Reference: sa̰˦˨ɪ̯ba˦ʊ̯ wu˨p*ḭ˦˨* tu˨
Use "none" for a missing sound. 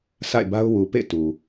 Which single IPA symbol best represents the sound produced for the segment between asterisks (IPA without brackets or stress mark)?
ḛ˦˨